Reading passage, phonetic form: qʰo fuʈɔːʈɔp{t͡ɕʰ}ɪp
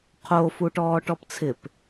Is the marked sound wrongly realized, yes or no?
yes